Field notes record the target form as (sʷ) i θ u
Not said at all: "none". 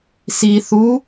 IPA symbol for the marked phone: s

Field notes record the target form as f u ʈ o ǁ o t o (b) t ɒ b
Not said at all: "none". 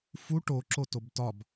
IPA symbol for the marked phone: b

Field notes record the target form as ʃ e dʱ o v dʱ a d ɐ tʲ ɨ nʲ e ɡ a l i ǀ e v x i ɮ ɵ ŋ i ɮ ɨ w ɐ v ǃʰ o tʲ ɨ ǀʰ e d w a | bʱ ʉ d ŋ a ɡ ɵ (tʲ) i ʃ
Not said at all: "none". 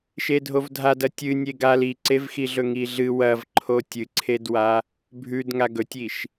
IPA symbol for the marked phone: tʲ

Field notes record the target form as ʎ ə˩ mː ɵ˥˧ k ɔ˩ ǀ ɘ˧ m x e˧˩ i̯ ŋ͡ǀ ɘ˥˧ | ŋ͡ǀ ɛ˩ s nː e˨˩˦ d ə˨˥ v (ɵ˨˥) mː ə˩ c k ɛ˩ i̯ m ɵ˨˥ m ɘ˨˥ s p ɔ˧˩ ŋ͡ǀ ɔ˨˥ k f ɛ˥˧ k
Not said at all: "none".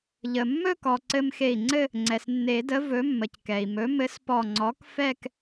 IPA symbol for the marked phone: ɵ˨˥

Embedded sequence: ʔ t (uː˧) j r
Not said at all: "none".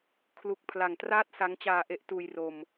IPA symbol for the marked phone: uː˧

